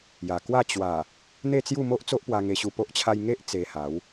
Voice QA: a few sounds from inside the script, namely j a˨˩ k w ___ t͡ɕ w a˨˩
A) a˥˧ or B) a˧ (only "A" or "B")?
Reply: A